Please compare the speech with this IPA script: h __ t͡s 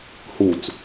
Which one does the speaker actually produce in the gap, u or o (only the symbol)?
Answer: u